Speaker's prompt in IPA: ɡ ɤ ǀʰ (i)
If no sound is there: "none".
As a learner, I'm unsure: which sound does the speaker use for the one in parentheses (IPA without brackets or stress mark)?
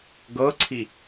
i